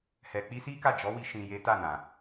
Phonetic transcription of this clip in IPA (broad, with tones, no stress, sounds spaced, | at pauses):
h ɛ˨ k͡p i˧ s i˦ k a˦˨ d͡ʒ ɔ˨˦ w i˧ ʃ ĩ˨ j e˨˦ t a˦˨ n ã˨